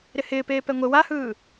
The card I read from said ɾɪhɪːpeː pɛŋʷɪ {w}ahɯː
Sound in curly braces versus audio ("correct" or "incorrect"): correct